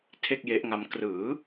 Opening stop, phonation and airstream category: aspirated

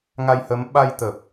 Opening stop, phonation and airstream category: implosive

